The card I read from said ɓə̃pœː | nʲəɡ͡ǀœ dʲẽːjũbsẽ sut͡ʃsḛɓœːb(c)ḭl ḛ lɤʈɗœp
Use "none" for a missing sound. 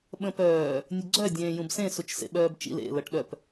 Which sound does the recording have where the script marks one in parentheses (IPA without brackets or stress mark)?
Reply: t͡ʃ